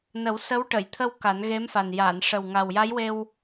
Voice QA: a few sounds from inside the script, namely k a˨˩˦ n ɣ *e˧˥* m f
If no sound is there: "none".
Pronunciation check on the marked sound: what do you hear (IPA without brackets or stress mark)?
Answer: e˧˥